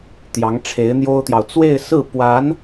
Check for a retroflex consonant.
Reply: present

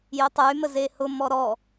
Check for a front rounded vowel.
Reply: present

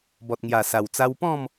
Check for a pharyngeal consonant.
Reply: absent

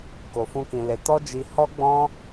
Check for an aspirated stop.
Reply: absent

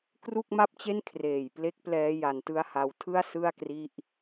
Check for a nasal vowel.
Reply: absent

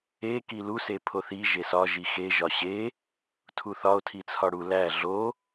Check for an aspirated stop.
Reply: present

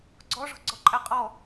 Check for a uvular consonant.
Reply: present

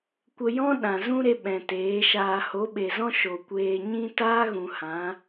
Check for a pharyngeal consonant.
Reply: absent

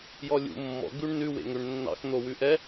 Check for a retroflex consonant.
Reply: present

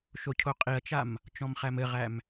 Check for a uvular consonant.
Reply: present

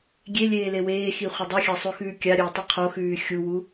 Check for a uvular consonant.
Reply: present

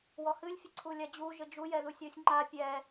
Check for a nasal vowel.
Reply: absent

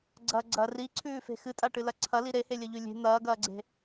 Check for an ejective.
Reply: present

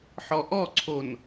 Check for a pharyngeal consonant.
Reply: present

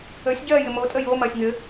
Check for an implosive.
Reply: absent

